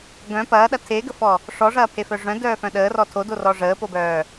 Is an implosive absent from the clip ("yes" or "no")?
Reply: no